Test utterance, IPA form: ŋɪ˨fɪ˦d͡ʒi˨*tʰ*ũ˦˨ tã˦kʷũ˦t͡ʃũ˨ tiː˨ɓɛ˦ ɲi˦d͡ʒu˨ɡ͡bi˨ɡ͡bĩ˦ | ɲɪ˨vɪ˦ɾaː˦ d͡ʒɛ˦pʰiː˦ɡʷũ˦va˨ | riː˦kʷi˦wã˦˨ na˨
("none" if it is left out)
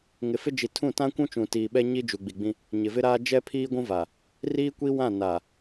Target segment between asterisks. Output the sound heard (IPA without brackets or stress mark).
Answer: tʰ